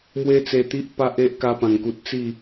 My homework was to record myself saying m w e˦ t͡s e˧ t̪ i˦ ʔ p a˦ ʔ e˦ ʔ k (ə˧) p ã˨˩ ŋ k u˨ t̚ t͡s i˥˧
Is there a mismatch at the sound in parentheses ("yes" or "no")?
yes